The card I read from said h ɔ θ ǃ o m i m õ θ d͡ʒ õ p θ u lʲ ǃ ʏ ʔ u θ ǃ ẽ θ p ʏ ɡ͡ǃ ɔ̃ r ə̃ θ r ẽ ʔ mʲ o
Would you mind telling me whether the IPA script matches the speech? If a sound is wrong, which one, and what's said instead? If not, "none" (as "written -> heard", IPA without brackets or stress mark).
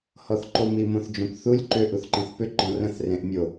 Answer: none